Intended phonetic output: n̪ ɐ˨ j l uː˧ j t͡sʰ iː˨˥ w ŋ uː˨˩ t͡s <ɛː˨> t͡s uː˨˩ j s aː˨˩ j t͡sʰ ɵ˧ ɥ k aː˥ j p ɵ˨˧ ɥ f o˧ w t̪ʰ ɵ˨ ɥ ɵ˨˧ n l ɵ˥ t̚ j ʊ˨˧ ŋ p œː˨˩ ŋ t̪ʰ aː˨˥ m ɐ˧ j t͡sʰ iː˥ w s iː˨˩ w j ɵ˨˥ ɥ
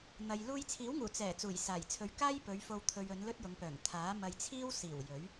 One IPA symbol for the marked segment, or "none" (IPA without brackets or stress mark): ɛː˨˩